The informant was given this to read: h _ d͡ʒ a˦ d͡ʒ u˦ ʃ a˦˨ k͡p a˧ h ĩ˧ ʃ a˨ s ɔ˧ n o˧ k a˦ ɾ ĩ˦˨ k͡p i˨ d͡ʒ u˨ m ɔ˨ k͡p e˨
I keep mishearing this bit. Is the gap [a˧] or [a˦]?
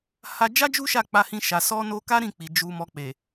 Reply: a˧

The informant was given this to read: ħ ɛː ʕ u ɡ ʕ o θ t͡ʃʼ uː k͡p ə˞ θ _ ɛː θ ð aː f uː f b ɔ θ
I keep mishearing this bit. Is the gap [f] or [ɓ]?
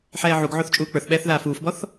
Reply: ɓ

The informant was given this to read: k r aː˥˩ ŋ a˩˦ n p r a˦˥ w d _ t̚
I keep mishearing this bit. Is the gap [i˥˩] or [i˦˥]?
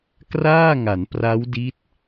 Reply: i˦˥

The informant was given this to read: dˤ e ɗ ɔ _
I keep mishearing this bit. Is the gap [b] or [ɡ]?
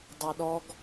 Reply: ɡ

